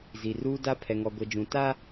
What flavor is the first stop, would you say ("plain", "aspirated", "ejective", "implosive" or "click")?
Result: plain